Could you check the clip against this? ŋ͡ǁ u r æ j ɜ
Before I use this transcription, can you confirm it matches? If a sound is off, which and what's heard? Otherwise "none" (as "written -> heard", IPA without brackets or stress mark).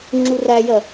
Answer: none